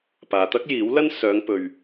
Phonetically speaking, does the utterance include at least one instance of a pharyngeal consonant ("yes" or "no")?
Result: no